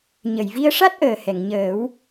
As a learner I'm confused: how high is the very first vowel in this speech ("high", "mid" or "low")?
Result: mid